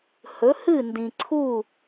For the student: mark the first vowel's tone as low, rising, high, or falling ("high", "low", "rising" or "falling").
rising